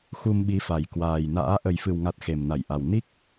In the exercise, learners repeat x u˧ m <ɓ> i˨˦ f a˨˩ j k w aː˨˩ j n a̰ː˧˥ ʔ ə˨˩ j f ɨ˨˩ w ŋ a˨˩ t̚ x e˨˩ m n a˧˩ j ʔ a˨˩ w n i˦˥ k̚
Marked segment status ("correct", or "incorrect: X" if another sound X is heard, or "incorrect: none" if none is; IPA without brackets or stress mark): correct